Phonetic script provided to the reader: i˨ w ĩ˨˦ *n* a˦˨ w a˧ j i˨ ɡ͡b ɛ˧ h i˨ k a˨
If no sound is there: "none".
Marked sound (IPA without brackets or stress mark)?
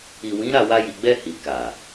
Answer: ɾ